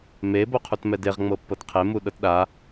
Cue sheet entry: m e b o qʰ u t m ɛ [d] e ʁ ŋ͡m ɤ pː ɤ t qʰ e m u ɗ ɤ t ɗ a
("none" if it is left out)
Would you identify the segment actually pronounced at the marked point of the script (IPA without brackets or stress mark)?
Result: d